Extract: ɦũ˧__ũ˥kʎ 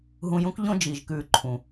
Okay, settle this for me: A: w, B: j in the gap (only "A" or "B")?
B